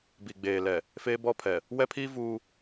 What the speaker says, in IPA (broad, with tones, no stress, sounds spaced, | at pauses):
b i˨ ɡ͡b eː˨ l ɛ˨ | f eː˦ b ɔ˦ pʰ ɛ˨ | w ɛ˦ pʰ iː˦ v uː˦